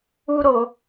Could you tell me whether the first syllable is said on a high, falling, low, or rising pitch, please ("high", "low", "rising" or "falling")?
high